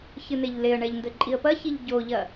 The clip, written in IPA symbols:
çɨneʎleə̯ɳɛʎ ndɘǃʼiə̯pɐçiʎ ɟoʎɐ

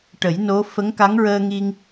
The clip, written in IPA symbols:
ʈə˨˩˦jno˧˥ fə˧˥ŋka˧˥ŋ ɹəː˧ŋi˧ŋ

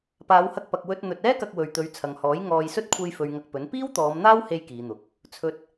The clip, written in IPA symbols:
paː˨˧whɐ˧k̚pɐ˨k̚ wɵ˧t̚ n̪ɵ˨t̚ɛː˥kɐ˧k̚ wɵ˧ɥ t̪ɵ˨˧ɥt͡sʰɐ˨ŋhɔː˨˥j ŋɔː˧jsɵ˥t̚ kʷʰe˧jfɵ˨ɥ ŋɐ˧k̚pɵ˨˥n piː˥wt̪ɔː˨˧mn̪aː˥w he˥jkiː˨˧n̪ʊ˨˥k̚ | t͡sʰɵ˨t̚

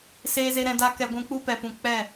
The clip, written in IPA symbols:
seː˧ze˧ɾɛ̃˧da˧ kɛ˧ɡʷũ˧ k͡pu˧pɛ˨pũ˨ k͡pɛ˦˨

